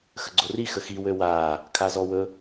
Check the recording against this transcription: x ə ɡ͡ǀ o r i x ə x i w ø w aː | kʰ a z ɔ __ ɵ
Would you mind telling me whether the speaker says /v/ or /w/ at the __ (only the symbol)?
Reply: w